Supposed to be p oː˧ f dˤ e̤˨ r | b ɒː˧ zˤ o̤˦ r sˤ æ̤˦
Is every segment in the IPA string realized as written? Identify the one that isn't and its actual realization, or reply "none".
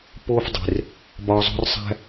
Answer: none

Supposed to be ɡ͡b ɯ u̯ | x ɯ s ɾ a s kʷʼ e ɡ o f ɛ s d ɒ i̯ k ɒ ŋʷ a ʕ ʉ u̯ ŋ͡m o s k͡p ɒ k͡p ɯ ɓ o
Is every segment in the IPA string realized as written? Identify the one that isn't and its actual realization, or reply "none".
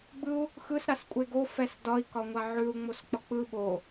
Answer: none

